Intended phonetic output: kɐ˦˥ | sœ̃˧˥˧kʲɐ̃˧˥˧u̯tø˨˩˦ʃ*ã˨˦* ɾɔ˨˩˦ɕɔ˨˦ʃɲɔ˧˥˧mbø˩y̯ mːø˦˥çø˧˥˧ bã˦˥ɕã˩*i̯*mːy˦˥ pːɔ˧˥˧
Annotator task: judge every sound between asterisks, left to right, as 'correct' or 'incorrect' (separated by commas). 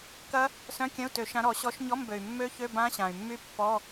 correct, incorrect